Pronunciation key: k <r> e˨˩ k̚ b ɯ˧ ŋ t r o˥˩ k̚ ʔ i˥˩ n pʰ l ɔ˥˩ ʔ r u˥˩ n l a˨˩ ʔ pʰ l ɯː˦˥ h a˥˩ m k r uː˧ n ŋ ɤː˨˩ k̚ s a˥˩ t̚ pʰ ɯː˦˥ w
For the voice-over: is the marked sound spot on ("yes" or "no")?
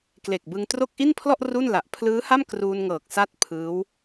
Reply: no